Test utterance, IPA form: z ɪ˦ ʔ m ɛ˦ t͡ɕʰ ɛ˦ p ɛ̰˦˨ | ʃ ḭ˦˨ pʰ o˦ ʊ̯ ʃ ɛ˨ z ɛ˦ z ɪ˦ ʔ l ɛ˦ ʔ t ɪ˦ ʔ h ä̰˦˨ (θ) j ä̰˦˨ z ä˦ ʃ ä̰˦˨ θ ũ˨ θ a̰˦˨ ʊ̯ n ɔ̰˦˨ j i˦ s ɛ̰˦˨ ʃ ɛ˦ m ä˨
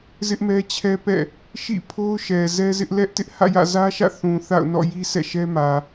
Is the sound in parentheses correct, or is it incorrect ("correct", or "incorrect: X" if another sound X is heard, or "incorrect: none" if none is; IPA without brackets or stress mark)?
incorrect: none